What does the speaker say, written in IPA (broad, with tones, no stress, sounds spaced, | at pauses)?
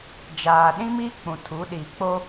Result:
d͡ʒ aː˨ ɗ ĩ˦ m i˦ k͡p ũ˨ tʰ u˨˦ ɗ iː˨ k͡p o˦